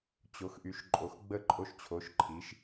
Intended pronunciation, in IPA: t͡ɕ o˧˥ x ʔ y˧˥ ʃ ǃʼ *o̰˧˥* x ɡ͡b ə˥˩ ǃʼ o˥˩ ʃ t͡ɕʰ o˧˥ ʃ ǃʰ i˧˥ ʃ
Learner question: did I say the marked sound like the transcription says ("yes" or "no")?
no